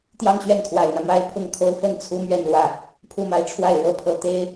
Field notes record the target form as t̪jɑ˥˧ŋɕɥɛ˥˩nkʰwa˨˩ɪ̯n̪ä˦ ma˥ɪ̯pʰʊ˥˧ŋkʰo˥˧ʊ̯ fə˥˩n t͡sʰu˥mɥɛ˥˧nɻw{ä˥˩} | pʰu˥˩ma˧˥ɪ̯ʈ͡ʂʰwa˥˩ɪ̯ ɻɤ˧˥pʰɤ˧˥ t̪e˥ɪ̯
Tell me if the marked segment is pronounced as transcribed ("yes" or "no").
yes